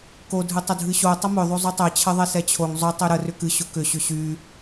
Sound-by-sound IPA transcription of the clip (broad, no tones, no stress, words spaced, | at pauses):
ko dʱɨtˤʊdʱɨɕo tˤəmʏ ðˤozˤutˤɛ t͡ɕʰəðˤɛsɛt͡ɕʰoŋ zˤʊ tˤyɾə rʏkɨ ɕʊkʏ ɕʏɕy